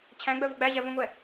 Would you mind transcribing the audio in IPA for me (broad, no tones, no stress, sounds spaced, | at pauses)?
t͡ɕʰ æ̃ ɡ͡b œ v o ɡ͡b æ ʑ æ v õ ŋʷ ɛ